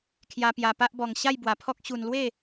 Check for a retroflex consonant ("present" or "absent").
absent